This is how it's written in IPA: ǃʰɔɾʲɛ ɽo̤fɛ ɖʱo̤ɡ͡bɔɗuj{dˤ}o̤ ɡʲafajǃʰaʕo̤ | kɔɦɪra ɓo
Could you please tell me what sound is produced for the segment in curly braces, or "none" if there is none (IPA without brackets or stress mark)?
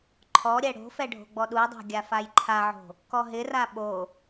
dˤ